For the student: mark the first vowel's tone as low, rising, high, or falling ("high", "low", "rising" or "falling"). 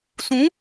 rising